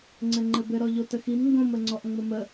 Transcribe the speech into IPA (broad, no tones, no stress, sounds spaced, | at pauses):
ŋ͡ǀ ɘ ŋ͡ǃ ɘ b ɘ ɾ ɔ ʎ o t ə x i m ŋ ɡ õ m ə ŋ͡ǀ ɔ ʔ ŋ͡m ə m ə